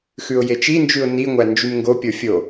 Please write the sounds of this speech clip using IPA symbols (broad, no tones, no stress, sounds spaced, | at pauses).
x ʉ ʊ̯ j e t͡ʃ i n d͡ʒ ʉ ʊ̯ n i ŋʷ æ n d͡ʒ y m ŋ ɡ o pʲ o fʲ o